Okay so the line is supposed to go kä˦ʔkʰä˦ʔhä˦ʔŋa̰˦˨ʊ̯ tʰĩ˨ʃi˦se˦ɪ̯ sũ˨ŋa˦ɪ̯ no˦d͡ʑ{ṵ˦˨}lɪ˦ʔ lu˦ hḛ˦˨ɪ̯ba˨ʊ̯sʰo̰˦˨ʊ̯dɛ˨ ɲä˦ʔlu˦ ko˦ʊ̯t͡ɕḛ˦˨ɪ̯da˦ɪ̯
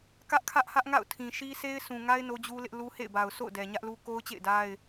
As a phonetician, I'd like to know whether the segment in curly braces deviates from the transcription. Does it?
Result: yes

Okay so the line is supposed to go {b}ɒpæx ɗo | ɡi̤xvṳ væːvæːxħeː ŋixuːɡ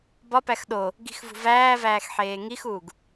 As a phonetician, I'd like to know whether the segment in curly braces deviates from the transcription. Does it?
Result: no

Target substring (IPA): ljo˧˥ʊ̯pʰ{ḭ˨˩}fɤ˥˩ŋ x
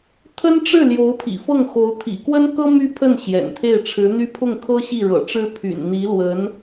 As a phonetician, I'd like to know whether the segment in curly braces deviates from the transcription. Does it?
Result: no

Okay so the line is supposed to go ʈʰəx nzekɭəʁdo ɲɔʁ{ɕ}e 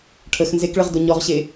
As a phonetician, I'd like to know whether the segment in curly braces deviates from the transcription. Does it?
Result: no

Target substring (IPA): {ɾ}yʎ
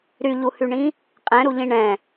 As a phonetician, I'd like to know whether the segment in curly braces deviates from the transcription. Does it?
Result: no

